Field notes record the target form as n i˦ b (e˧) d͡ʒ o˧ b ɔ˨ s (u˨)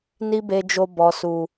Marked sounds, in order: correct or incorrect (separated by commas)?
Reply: correct, correct